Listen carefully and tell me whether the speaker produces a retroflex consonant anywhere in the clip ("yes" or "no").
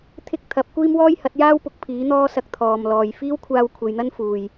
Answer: no